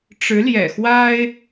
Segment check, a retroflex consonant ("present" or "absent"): present